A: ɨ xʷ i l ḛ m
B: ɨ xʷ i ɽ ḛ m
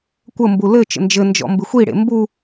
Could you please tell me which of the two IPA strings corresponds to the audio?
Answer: B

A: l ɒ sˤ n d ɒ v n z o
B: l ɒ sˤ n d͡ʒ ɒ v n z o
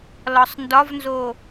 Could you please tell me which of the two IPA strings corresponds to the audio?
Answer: A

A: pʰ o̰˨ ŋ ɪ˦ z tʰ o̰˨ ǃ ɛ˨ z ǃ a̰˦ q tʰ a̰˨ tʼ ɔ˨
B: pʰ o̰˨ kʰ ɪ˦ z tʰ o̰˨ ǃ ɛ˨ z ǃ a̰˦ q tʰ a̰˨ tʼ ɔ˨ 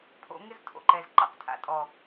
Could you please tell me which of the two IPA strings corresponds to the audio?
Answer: A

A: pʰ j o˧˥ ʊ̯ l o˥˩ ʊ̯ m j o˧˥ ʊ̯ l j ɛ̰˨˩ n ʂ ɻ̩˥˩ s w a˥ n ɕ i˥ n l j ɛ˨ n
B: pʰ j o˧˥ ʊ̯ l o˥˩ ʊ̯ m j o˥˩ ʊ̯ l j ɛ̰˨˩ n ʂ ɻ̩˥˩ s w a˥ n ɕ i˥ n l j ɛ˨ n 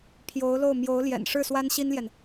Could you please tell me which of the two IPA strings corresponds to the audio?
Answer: A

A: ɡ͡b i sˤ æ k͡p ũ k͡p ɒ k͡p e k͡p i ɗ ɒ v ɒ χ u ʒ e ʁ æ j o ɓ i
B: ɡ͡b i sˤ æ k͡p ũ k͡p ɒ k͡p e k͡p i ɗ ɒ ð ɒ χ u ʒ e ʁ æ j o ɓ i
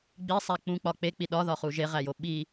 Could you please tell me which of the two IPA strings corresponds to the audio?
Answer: B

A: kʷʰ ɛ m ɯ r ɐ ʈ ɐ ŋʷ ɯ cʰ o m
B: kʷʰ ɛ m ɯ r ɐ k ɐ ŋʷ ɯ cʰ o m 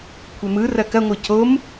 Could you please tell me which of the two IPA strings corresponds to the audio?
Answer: B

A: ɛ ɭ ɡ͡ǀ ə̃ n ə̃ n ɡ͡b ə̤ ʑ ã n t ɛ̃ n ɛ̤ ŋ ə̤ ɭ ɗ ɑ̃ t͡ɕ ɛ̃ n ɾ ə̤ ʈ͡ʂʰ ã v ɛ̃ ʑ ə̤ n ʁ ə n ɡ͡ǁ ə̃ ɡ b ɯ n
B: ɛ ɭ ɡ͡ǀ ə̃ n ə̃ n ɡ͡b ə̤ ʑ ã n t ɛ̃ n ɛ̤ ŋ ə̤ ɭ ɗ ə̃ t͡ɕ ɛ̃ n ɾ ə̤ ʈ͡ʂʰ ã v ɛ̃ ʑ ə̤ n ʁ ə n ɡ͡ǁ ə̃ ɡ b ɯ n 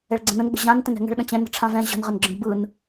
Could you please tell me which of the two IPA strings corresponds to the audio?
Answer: B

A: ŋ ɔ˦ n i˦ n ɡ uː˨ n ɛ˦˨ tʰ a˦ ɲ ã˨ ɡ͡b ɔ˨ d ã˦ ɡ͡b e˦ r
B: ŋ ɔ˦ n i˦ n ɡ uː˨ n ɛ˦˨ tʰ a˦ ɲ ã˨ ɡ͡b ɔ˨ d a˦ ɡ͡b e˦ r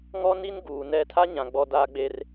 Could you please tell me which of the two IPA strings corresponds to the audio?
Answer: B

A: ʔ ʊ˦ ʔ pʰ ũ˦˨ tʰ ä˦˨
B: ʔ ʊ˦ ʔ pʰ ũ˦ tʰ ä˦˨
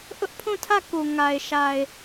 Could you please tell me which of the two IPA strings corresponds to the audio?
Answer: A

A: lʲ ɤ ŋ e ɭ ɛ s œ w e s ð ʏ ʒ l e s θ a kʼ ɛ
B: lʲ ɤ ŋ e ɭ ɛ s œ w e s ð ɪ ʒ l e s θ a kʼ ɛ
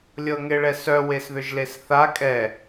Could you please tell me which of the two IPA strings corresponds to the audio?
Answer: A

